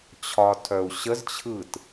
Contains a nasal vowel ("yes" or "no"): no